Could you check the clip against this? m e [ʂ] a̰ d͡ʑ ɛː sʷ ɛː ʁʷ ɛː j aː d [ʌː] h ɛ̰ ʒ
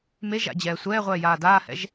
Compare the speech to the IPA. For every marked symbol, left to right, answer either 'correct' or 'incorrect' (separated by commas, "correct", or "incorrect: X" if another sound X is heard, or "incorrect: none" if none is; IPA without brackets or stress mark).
incorrect: ʒ, incorrect: aː